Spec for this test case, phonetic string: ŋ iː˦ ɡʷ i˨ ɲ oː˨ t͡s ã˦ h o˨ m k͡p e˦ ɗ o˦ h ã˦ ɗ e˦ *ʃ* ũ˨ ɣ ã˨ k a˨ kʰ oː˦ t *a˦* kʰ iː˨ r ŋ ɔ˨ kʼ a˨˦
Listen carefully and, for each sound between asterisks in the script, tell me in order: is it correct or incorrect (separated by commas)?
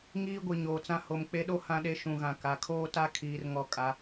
correct, correct